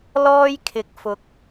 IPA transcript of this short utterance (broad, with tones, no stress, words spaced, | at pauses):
lɔː˥jkʰɪ˨˥k̚fʊ˨˥k̚